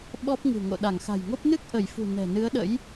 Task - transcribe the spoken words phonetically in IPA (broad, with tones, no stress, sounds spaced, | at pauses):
ɓ ɔ˦˥ p̚ ŋ ɨ̤˨˩ ŋ o̰˧˨ ɗ a˧˩ ŋ x a̤˨˩ j ŋ o˦˥ p̚ n ɨ˦˥ k̚ ʔ ə˧˩ j f ṳ˨˩ n ɛ̤˨˩ n ɨ˨˦ ə̯ ɗ ə̰˧˥ j